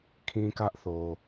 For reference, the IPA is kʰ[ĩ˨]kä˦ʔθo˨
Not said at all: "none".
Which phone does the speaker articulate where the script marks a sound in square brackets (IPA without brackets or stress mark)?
ĩ˦